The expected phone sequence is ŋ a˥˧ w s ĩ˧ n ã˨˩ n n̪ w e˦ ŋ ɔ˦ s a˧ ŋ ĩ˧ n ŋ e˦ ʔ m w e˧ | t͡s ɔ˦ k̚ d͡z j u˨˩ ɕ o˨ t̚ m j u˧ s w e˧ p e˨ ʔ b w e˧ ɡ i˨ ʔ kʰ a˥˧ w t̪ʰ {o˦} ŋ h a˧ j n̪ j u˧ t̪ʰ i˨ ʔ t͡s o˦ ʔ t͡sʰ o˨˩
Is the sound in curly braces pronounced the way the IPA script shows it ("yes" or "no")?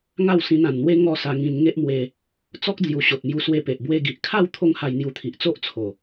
no